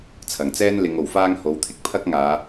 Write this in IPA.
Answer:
t͡sʰ ɐ˨˩ ŋ t͡s ɛː˥ n l ɪ˨˧ ŋ o˨˩ w f aː˥ ŋ h o˨˥ w t̪ʰ ɪ˧ k̚ pʰ ɐ˥ k̚ ŋ aː˨˧

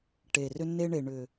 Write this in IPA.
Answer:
ʈ e˨ r ʏ˧ n e˧ ɳ e˨ ɳ ʏ˨

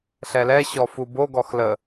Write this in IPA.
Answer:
ɬ ɛ l ɛ ɕ ɔ f u b o ɡ ɔ x l ə

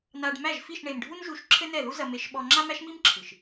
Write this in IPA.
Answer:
n a˧ ɖ m æ˦˨ ʒ f i˦˨ ʃ ɳ e˨ m ɖʱ u˦ n ʒ u˧ ʃ ǁʰ ɘ˦ n ɛ˦˨ ð u˦ z ɐ˧ m e˧ ʃ ɓ ɔ˧ ŋ͡ǁ a˦ m æ˦ ʃ m i˦ m ǁʰ ɨ˨ ʃ

